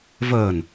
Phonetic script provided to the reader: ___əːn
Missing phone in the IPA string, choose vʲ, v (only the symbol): v